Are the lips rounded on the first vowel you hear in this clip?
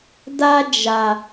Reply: no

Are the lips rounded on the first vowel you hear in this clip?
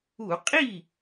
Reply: yes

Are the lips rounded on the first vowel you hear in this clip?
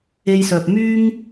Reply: no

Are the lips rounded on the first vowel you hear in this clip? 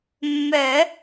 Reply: yes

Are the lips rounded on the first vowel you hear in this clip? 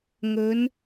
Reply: yes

